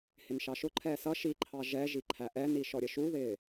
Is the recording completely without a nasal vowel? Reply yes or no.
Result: yes